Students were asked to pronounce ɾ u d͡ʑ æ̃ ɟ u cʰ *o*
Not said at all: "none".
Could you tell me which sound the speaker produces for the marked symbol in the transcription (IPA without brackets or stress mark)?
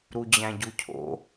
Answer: o̰